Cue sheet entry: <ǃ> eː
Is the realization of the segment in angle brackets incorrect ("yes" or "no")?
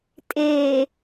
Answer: yes